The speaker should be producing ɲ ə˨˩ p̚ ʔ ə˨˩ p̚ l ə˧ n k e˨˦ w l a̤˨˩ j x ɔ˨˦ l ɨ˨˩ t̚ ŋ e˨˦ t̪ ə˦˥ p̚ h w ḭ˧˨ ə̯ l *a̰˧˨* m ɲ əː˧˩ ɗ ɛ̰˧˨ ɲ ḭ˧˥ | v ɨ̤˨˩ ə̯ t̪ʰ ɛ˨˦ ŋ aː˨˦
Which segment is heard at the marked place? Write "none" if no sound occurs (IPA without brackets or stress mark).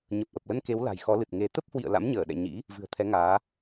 a̰˧˥